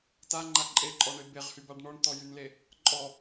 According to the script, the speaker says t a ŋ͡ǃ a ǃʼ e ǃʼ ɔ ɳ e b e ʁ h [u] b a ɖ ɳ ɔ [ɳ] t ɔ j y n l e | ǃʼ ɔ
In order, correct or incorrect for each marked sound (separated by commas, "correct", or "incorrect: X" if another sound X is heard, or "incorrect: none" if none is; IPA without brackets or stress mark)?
incorrect: y, correct